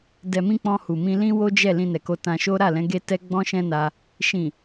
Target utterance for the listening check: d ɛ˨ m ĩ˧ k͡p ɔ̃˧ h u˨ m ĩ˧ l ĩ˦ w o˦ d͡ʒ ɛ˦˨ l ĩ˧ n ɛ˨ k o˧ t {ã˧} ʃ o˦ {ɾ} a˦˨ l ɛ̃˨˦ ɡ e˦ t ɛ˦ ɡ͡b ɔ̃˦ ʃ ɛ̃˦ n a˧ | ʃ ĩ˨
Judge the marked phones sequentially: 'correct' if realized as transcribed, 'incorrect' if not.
correct, correct

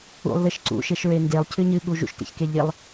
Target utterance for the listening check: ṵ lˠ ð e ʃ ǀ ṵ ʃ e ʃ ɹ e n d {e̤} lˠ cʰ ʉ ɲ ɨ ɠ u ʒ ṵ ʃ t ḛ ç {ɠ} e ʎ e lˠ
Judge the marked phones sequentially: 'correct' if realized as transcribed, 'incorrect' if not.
incorrect: e, incorrect: k

